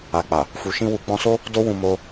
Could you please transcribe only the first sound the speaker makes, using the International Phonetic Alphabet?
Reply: a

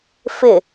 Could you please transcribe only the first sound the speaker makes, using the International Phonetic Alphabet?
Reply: f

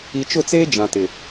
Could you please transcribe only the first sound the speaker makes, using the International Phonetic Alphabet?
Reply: i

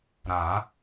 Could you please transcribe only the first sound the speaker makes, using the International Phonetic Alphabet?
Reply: ɾ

